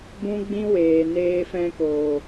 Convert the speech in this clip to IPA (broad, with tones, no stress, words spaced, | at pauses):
bũ˦ɡ͡bĩ˦weː˨neː˧ fɛ̃˧ko˨